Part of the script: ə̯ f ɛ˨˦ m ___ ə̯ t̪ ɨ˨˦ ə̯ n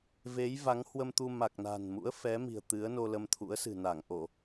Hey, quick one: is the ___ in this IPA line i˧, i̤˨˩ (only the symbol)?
i̤˨˩